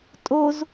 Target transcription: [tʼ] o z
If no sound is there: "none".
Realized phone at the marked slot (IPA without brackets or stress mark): tʼ